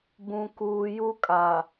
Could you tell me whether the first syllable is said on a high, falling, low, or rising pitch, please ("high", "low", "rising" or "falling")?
low